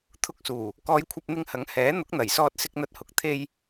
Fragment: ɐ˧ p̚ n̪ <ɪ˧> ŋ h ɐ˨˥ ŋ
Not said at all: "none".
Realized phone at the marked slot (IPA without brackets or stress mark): ɪ˧